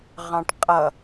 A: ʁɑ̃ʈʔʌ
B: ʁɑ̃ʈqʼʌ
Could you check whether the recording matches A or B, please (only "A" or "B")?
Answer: B